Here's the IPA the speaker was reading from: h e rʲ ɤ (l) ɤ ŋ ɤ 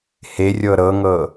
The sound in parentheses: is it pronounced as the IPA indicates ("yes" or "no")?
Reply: no